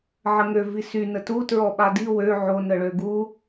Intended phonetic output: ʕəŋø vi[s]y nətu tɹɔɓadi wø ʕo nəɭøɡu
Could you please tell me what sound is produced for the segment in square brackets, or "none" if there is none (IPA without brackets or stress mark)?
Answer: s